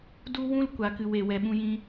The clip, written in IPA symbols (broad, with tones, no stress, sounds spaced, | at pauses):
d u˦ w ũ˦ l kʷ a˨ k ɨ˨ w e˨ w ɛ˨ ɓ ũ˧ j ĩ˧